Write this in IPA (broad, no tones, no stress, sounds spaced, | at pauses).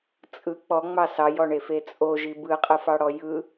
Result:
t͡sʼ ɯ k͡p ɔ ŋ͡m ɑ s ɑ j ɔ ɳ e f e t͡sʼ o ʒ i b ɯ qʼ ɯ f ɑ ɽ ɔ j ɯ